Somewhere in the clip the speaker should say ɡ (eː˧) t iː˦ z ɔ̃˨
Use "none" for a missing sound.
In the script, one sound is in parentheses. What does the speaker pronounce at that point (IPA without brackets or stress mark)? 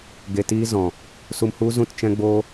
e˧